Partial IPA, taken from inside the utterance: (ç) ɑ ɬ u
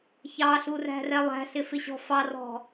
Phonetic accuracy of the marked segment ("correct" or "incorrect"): correct